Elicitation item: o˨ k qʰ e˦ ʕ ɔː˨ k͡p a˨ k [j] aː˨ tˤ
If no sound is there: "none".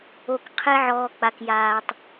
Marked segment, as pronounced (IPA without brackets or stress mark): j